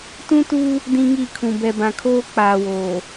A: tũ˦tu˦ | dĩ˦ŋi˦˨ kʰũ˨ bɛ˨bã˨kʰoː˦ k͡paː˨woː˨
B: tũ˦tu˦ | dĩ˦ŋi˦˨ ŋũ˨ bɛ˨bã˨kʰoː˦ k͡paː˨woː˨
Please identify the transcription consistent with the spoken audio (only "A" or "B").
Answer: A